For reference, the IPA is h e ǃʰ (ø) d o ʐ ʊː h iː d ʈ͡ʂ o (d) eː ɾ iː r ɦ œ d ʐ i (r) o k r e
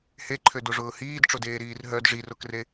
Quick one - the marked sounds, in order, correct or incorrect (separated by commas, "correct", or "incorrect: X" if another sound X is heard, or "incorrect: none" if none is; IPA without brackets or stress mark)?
correct, correct, correct